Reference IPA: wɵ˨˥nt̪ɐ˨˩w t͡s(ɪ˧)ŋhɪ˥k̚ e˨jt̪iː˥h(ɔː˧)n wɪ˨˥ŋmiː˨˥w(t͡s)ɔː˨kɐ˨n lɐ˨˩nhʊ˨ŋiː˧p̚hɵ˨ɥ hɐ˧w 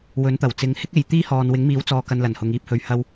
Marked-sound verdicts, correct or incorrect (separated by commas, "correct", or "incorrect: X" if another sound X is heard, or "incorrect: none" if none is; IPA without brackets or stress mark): incorrect: ɪ˨˧, incorrect: ɔː˨, correct